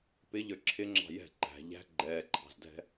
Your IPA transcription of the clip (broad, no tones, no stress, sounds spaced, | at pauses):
p ɪ ʎ ə˞ ǁʰ ɪ ŋ͡ǁ ɑ̤ j ɛ̤ ǃ æ̤ ʎ æ̤ ɡ͡ǃ ɛː ǃʰ ɑ̤ z dʱ ɛ̤